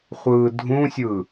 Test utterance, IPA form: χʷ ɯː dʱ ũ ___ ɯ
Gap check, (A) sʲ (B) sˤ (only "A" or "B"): A